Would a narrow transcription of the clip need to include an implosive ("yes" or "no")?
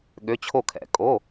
yes